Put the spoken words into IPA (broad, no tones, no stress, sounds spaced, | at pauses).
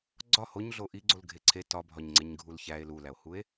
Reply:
ɡ͡ǀ ɒ h o ɲ ɮ o ʔ i ɡ͡ǀ o l ɡʱ e ǀʰ e t ɒ bʱ ɒ ɲ ŋ͡ǀ e ɲ ɡʱ u l ç æ e̯ l u l æ o̯ h u e̯